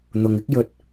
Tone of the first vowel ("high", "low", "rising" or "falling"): low